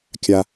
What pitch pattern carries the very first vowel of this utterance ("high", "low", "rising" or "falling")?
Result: low